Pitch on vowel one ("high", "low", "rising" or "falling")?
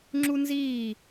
high